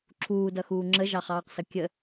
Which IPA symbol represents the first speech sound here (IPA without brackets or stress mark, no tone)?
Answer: ǁʰ